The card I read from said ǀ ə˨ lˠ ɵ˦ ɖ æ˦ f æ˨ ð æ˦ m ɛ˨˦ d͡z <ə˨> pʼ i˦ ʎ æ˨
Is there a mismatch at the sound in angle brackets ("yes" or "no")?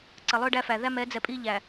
yes